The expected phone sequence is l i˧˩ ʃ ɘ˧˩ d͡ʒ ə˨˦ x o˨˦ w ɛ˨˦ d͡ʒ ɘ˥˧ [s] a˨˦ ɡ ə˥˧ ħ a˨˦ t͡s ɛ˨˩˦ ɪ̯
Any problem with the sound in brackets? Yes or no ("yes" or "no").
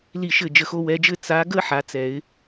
yes